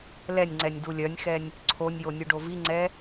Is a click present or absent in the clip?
present